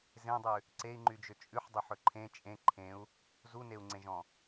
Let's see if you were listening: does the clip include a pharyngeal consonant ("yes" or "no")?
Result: yes